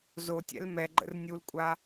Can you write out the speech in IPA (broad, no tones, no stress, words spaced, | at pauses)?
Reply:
zotʲɛ̰l mɛɡ͡ǃə̰r nʲulkʷʼa